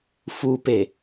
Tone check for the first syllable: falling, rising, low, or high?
low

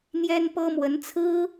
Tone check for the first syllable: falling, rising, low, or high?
high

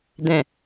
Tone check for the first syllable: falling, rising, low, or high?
low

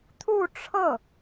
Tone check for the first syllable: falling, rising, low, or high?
falling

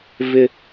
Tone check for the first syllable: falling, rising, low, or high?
high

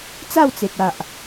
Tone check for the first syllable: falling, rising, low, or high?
falling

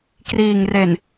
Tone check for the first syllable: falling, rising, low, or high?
low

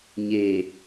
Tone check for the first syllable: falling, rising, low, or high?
low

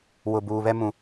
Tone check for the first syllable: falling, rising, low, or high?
low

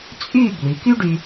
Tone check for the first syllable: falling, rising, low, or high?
falling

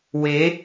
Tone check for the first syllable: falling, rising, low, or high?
rising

